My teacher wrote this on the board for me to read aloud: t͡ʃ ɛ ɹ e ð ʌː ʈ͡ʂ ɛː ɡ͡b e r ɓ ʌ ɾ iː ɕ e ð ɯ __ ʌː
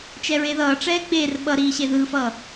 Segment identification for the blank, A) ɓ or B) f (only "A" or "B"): B